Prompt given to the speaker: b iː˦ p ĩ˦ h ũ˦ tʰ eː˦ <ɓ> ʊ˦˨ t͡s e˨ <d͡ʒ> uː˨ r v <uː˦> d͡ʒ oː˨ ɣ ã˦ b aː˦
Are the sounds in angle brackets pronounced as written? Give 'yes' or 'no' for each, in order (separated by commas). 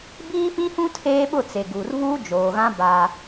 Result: yes, no, yes